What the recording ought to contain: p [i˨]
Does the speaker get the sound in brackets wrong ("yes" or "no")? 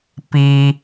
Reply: yes